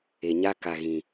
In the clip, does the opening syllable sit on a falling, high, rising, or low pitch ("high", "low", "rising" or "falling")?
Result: low